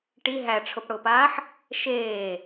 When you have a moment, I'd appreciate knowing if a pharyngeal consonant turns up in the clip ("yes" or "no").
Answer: yes